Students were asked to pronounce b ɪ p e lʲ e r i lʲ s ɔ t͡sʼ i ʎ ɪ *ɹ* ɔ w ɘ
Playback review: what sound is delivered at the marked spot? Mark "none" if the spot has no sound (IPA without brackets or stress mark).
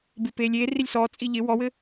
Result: w